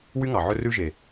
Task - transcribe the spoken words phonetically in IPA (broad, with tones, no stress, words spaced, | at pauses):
wy˦ŋɑ˨ʕɵ˦ rʉ˦ʒe˨